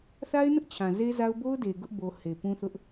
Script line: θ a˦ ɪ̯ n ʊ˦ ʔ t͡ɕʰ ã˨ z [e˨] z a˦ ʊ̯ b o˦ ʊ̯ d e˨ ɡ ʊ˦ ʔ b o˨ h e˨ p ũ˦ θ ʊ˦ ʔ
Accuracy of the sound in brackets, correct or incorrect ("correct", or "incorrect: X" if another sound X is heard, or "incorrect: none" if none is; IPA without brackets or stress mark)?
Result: incorrect: e˦